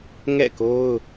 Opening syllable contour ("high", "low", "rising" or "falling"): falling